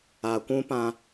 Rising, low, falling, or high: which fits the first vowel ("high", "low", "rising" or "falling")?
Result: low